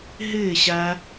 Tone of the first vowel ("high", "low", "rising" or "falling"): falling